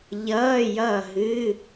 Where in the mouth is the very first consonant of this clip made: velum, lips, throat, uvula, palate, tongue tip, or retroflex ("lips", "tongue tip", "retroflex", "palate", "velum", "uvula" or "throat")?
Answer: palate